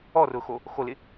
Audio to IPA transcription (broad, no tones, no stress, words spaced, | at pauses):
ɔrʊxo | xolɪ